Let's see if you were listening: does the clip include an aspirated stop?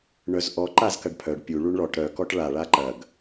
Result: yes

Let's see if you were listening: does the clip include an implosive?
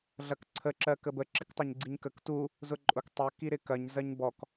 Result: no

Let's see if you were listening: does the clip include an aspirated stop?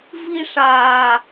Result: no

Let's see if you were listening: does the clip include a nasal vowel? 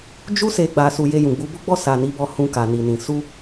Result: yes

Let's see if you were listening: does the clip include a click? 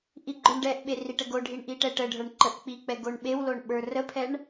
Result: yes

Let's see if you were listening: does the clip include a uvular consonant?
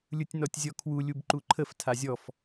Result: no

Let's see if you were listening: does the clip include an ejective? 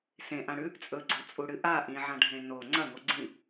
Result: yes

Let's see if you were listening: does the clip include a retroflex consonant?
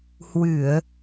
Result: no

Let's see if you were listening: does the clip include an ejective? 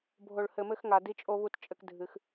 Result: yes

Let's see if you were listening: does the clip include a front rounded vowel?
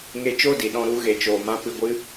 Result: no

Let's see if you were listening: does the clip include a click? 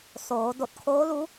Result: no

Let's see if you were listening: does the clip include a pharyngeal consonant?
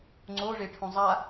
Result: no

